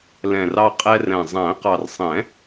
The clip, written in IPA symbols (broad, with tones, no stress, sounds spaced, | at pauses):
l ɛ̃˨˩ r ɑ˧ qʼ ɛ˧ r ɛ̃˨˩ zˤ æ̃˨˩˦ q ɑ˨˩ r sˤ ɛ̃˨˩˦